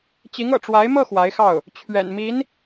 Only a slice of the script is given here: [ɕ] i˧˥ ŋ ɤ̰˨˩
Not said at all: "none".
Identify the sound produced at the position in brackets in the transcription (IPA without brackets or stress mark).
t͡ɕ